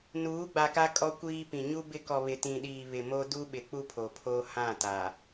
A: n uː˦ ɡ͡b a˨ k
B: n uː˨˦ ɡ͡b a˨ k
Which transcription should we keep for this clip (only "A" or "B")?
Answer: B